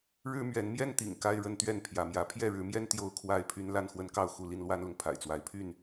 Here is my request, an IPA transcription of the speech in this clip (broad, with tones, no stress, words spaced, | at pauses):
ɻɻ̩˦ mɥɛ˨˦nmjɛ˦n t̪ḭ˨˩ŋka˦ɪ̯ ɻə˦nt̪ɥɛ˥˨n pʰjä˨˦mjä˨˦ pʰjɛ˥˨ɻɻ̩˨˦mjɛ˦n t̪jo˦ʊ̯kʰwa˥˨ɪ̯pʰy˦n la˥˨nxwə˦nkɑ˥˨ʊ̯ xu˥˨ li˥˨nlwa˦nlʊ˨ŋ pʰa̰˨˩ɪ̯t͡swa˨˦ɪ̯pʰy˥˨n